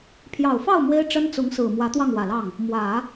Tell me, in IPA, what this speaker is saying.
pʰ j ɑ˨˩ ʊ̯ f ɑ˥˩ ʊ̯ m w e˥ ɪ̯ ʈ͡ʂ ə˥ n t͡s ʊ˧˥ ŋ s ɹ̩˨˩ m w ä˧˥ t̪ w ɑ˥˩ ŋ w ä˨˩ l ɑ˥˩ ŋ | m w ä˨˩˦

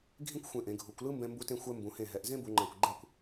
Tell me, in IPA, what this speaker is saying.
ɡʱ ĩ˥ kʷ xʷ ẽ˧˩ ʔ ẽ˩˧ ɡʱ u˩˧ kʷ l ɯ˥ m b ɛ̃˧ m b u˧ t ẽ˧ xʷ ɛ˧ m b ũ˩˧ h ẽ˧˩ ɦ ɛ˩˧ ʔ z ẽ˥ b u˩˧ ŋ͡ǃ ã˧˩ kʷ ɡ͡ǃ ɛ˥˧ kʷ

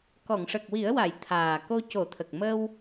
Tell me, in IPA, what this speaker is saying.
k ɔ˨˩˨ ŋ ʂ ə˨˩ k̚ w i˨˩˦ ə̯ w a˨˩˨ j t̪ʰ aː˨˩ k o˧ c o˨˩˦ t̪ʰ ə˨˩ k̚ m ə˧ w

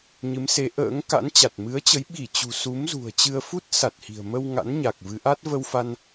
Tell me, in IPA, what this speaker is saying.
ɲ ɨ˨˦ m s e˨˦ ʔ ə̰ː˧˥ ŋ k a̰˧˥ n t͡ɕ a˨˩ t̚ m ɨ˨˦ ə̯ t͡ɕ ə˨˦ j ɓ i˧˩ t͡ɕ ṳ˨˩ s u˨˦ m z ṳ˨˩ ə̯ t͡ɕ ɨ˧ ə̯ f u˦˥ t̚ s a˨˩ t̚ h i̤˨˩ ə̯ m ə˧ w ŋ a̰˧˥ n ɲ a˨˩ k̚ v ɨ˨˦ ʔ a˦˥ t̚ v ə˧ w f a˧ n

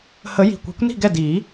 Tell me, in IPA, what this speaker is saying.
h ə˨˩˦ j i̤˩ kʷ e̤˨˩˦ kʷ n i̤˥˩ ɡ ɛ˥˩ d iː˨˩˦

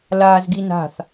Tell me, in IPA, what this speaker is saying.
l aː z ɡ i n a̤ θ

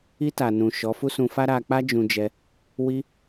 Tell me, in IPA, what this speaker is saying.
i˧ t a˨ n ũ˨ ʃ ɔ˨˦ f u˦ s ũ˧ f a˦ ɾ a˧ k͡p a˦ d͡ʒ ũ˧ d͡ʒ ɛ˧ | w i˧

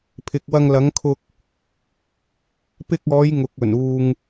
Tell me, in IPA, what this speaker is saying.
pʰ ɪ˨ k̚ w ɐ˧ ŋ l ɐ˨˥ ŋ kʰ ʊ˧ k̚ | p ɪ˧ k̚ ɔː˨˧ j ŋ ʊ˨ k̚ ɵ˨˩ n uː˨ ŋ

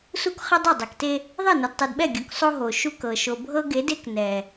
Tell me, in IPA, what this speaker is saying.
s u˦ k χ ɘ˦ dˤ o˦˨ dˤ ɛ˨ k t e˦ | ðˤ e˦˨ n ɤ˨ d tˤ e˨ d ɓ ɛ˦˨ ɡʲ u˨ k sˤ o˦ ɦ o˨ ʃ u˦ k ɤ˨ ʃ o˨ bʱ ɤ˦ ɡ e˨˦ d e˦ k n ɛ˨

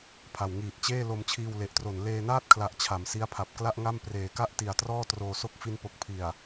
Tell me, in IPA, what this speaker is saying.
pʰ a˨˩ w ŋ iː˨˩ t̚ t͡ɕ eː˥˩ l o˧ m t͡ɕʰ iː˧ w l e˨˩ ʔ t r o˨˩ n l eː˧ n aː˥˩ t̚ kʰ l a˨˩ ʔ t͡ɕʰ a˩˦ m s i˦˥ a̯ pʰ a˨˩ p̚ k l a˥˩ ʔ ŋ a˥˩ m p r eː˨˩ k a˥˩ ʔ t i˨˩ a̯ t r ɔː˥˩ t r oː˧ s o˥˩ k̚ f i˧ n p o˨˩ k̚ pʰ i˨˩ a̯

